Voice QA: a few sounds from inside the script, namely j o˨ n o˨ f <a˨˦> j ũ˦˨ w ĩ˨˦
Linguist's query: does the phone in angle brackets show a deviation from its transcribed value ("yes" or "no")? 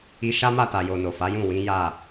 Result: no